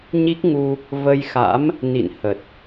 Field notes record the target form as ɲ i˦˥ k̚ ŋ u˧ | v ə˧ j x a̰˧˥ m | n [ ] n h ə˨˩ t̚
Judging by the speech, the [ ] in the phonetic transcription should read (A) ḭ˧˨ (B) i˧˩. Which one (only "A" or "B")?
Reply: A